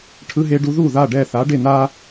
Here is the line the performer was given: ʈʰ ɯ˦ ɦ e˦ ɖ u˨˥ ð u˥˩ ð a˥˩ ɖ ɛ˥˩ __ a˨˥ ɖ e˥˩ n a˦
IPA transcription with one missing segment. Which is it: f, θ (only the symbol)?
θ